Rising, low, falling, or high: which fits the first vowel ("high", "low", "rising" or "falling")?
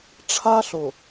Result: high